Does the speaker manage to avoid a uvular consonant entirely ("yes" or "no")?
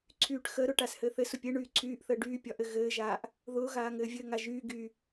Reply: yes